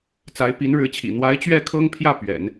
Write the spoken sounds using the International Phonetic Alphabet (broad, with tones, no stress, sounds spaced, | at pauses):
t͡s a˧˥ ɪ̯ p i˧˥ n ɻ ɻ̩˧˥ t͡ɕʰ ḭ˨˩ n̪ w a˧˥ ɪ̯ t͡ɕ ɥ ɛ˥˩ kʰ ɤ˥ ŋ pʰ j ä˥˩ p ɥ ɛ̰˨˩˦ n